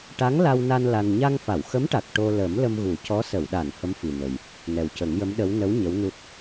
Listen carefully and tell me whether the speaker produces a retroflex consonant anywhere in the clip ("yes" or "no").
yes